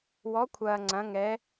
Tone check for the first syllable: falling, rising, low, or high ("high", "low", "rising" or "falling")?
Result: rising